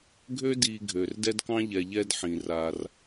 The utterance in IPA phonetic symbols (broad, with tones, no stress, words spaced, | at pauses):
ɡʱø˦di˨ ɡʱø˩rdɛ˦dkɑ̃˦ʎɛ˨ ʎɛ˦dħĩ˩raː˨r